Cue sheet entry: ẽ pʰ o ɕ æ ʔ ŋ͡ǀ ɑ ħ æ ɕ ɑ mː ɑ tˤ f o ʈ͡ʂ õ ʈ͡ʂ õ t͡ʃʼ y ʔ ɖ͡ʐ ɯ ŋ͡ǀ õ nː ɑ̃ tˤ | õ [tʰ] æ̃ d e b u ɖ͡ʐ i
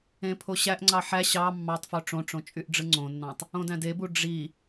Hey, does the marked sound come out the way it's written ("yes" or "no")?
no